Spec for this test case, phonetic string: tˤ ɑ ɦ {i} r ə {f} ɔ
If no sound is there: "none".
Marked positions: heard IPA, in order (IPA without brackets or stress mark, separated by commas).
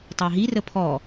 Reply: i, pʰ